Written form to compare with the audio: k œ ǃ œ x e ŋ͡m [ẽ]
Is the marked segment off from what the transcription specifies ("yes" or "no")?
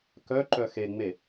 yes